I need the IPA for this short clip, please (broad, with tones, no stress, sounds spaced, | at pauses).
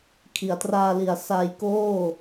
kʰ i˩˦ a̯ t r aː˧ l i˨˩ a̯ s a˧ j k oː˥˩